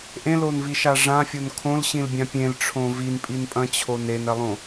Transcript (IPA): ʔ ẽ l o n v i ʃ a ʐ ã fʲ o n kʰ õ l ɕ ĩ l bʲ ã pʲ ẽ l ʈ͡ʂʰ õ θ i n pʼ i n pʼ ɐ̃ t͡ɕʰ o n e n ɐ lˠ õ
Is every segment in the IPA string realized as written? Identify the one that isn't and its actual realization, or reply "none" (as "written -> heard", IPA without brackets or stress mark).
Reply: θ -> v